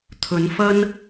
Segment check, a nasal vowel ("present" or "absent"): absent